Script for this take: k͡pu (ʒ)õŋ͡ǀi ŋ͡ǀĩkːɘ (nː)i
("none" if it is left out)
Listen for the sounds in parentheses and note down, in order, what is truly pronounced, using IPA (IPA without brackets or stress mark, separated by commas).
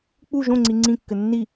ʒ, nː